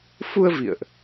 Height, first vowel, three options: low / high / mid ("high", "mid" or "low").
high